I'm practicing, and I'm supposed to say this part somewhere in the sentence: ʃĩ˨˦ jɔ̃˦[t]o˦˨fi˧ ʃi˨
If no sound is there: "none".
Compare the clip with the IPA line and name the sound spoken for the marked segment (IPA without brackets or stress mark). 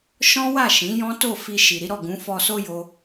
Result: t